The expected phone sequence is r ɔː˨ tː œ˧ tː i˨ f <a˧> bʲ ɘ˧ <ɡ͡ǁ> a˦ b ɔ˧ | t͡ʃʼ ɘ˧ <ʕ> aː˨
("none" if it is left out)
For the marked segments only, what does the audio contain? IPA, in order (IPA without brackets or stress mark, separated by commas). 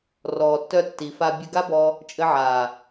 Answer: a˧, ɡ, ʕ